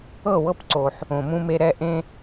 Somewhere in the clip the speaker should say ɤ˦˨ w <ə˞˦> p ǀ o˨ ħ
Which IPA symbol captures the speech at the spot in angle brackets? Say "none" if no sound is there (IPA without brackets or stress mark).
ɤ˦